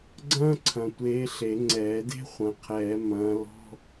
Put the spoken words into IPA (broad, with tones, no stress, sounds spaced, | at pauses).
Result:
ɡ͡ǀ ɐ̃ː˥ ǀʰ ɐ̃˨ tʷ eː˨˦ ɬ e˨˩˦ ŋ͡ǀ ɛː˨˩˦ d e̤˥ χʷ ɐ̃˨ qʰ ɛː˨˩˦ m ɐ̃ː˨˦ l ɔ̤˧˥˧